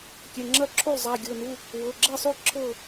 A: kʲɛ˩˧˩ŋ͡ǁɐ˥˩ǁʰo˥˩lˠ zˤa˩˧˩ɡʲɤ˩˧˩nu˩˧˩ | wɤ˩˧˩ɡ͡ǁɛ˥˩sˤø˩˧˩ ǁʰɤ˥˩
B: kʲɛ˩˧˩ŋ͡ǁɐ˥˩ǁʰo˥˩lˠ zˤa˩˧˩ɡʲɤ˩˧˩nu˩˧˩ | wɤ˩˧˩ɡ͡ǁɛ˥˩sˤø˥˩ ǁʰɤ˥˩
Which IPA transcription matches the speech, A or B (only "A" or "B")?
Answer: B